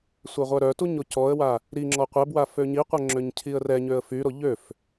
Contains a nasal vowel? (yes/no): no